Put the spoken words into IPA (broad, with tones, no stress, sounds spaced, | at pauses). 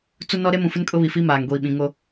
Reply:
t͡s u˦ n ɔ˦ ɾ e˦ m ũ˨ f ɪ˦ n kʼ ʊ˦ β i˨ f i˦ m aː˨ ŋ ɡʷ iː˨ ɓ ĩ˨ ŋ o˦